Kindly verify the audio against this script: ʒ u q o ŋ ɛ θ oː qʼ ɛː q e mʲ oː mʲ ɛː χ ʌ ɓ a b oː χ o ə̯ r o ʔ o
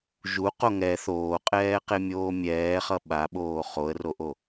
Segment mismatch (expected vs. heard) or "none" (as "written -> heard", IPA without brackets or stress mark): b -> ɓ